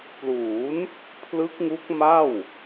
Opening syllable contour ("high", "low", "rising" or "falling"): rising